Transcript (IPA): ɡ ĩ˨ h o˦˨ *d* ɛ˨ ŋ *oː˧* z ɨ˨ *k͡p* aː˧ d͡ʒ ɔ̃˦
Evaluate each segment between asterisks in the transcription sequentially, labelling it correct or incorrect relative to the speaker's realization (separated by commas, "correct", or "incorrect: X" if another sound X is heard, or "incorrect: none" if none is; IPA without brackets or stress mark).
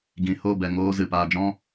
incorrect: b, correct, incorrect: p